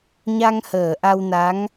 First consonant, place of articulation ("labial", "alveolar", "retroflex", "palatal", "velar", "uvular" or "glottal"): palatal